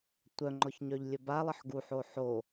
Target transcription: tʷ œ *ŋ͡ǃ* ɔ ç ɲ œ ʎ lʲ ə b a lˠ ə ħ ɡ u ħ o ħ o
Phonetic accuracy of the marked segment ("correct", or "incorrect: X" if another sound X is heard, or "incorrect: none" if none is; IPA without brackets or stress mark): correct